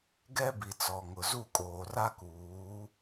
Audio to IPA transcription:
ɡɛ˦ bi˨t͡sɔ˨ŋʊ˨ zu˦˨kʼoː˨ra˦ kuː˨˦

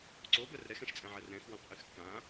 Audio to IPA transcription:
ǀobœr ɾɛxɛ̃ʃt͡sʼɛ̃ʕɛr ɾɛ̃xwõqʔyx kã

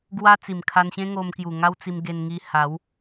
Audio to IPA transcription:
ɡwa˦ t͡si˨˩mkʰa˧nɕẽ˦ ŋo˧mkju˨˩ ŋa˦wt͡si˧mɡe˧nŋi˧ ha˨˦w

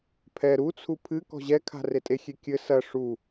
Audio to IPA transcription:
pʰɛ ɾut͡sʰu pʰɨ kɔ̤ʑɛkʰa̤ retʼexʲe kʲɘ sɐ ʂu

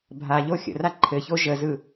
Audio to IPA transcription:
bʱaʎo xʲə̰ra ǃʰɘço ʒəzɯ

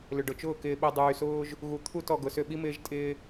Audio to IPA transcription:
lʏ˨ɖʊ˨t͡ʃʊː˦˨ kɪː˨ɓi˨ dˤyː˨sʊː˦ʒ | ɣu˨t̪ʰu˦˨t ɔ˨ɡʊ˨sʏ˦˨ɓi˦ mɪː˦ʒtʼɪː˦

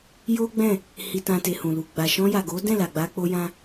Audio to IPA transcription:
jo˦ɡ͡bɛ̃˦˨ | hi˨tã˨te˨ hũ˨lu˨ ɡ͡ba˨ ʃɔ̃˧ja˨ɡo˨˦dɛ̃˦˨ la˨ɡ͡ba˧k͡po˧ jã˦

